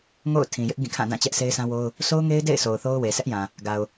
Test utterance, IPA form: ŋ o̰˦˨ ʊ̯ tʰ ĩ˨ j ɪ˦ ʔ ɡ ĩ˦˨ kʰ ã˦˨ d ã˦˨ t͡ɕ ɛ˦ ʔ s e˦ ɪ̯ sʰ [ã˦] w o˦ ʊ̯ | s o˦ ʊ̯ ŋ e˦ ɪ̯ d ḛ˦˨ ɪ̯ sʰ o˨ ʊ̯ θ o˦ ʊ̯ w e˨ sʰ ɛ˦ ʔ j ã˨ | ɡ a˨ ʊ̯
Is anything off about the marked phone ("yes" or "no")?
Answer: no